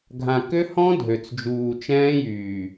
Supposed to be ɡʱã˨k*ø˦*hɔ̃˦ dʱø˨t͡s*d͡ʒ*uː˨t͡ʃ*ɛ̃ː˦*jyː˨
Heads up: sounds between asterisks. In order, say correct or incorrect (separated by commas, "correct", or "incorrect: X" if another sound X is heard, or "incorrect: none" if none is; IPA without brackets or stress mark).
correct, correct, correct